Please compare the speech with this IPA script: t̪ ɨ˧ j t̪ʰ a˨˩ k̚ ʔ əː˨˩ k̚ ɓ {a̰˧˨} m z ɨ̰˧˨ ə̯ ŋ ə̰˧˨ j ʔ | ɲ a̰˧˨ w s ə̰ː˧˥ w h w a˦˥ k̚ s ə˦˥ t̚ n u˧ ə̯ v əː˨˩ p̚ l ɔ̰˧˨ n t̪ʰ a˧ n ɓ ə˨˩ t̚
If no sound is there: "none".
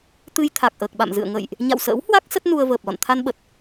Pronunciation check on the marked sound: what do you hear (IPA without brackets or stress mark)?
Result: a̰˧˨